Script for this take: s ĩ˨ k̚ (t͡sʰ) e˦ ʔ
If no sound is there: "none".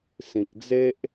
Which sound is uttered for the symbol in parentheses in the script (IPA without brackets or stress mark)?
d͡z